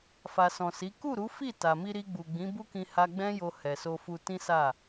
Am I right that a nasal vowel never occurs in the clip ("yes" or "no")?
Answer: no